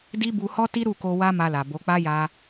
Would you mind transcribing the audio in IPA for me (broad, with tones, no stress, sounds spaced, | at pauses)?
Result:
d i˦ b u˧ h ɔ˦ t i˦ ɾ u˦˨ k o˧ w a˦ m a˧ l a˨ b o˨˦ k͡p a˦ j a˧